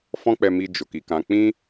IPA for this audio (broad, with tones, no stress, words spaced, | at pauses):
fɔ̃˦k͡pɛ˧mi˧ d͡ʒo˨ki˨˦kã˧ k͡pĩ˦